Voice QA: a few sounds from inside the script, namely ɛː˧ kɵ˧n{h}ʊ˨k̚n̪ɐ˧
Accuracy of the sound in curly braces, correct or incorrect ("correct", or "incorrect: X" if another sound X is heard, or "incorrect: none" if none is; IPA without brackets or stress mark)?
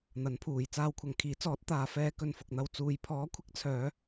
incorrect: f